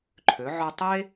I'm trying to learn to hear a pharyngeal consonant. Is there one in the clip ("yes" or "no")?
yes